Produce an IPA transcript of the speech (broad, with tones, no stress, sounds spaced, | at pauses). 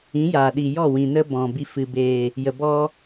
ĩ˨˦ j aː˨ ɗ i˨ j ɔ˦˨ w ĩ˨ n ə˦ b ɔ̃˨ b i˧ f ɨ˨ b eː˨ | j ə˨ b ɔ˦